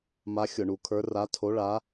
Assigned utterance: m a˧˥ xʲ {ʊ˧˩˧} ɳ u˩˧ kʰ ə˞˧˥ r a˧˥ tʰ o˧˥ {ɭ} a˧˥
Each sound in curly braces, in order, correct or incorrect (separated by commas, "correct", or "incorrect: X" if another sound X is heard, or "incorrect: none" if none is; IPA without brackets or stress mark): correct, correct